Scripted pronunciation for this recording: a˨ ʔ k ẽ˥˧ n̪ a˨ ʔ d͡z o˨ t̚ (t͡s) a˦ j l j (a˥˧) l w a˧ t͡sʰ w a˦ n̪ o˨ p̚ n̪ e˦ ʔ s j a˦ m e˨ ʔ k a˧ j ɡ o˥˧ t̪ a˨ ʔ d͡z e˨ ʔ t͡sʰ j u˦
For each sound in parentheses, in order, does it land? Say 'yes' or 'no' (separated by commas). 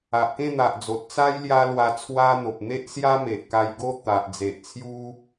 yes, no